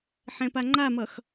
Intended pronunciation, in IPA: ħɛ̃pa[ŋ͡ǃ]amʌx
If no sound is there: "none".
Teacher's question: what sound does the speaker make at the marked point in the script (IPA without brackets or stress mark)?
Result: ŋ͡ǃ